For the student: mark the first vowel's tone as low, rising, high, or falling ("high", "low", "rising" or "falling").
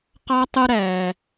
high